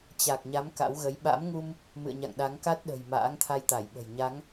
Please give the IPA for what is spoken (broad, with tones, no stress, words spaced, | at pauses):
t͡ɕa˨˩k̚ɲa˨˦m ka̰˧˥wɣə˨˦j ɓa̰˧˥mŋu˧m | mɨ̰˧˨ə̯ɲa̰˧˨ŋɗa˨˦ŋ ka˦˥t̚ɗə̤˨˩j ma̰ː˧˥ŋt̪ʰa˧jt̪a˧˩jɓə̤˨˩j ɲa˨˦ŋ